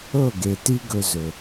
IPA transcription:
ɤ˦˨ ɡ e˨ t i˦ ɡ ɵ˧ z ɵ˨

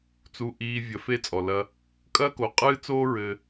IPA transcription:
t͡s u˧ ʔ iː˧ vʲ ɐ˧ f e˦ t͡sʼ ɔ˨ l ɐ˧ | kʼ ɐː˦ k o˨ qʼ ɨː˦ t͡s oː˦ ɹ ɘ˧

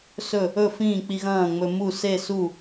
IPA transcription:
s ɵ˥˩ | ɵ˥˩ f ĩː˥˩ k͡p i˧ ɣ ɐ̃ː˥˩ ŋ͡m ɵ˧ m u˥˩ s e˥˩ s u˥˩

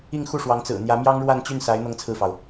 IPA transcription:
i˥˧ ŋ x u˥˩ ʂ w ɑ˧˥ ŋ t͡s ɹ̩˨˩ n̪ j ä˧˥ m j ɑ˥ ŋ ɻ w a˥˧ n t͡ɕ y˥˩ n s a˧˥ ɪ̯ n̪ ɤ˥ ŋ t͡sʰ ɹ̩˥˩ f ɑ˩ ʊ̯

